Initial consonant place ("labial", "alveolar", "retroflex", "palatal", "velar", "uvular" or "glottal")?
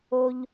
palatal